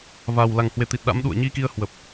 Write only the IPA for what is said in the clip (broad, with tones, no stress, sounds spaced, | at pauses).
v a˨˩ w l a˨˩ ŋ h w e˧˩ t̪ i˨˩ t̚ ɗ a̰˧˥ m ɗ ṵ˧˨ ə̯ ɲ i˧ k i˧ ə̯ h w ə˨˩ p̚